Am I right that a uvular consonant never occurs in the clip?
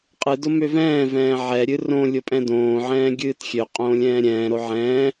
no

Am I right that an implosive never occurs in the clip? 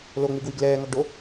yes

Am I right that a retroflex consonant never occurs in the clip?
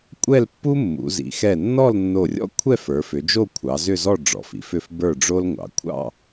no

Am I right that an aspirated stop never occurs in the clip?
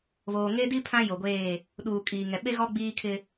no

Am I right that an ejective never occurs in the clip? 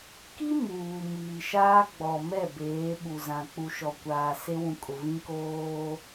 no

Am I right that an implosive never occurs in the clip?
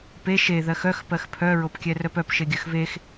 yes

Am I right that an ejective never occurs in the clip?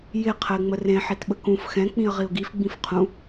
yes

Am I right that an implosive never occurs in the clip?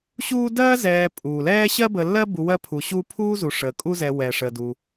yes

